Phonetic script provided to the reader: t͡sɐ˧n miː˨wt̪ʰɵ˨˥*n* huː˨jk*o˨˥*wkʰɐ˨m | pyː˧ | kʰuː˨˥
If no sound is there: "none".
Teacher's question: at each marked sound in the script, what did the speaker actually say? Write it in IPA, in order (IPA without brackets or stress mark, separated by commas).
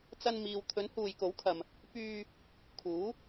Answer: n, o˨˥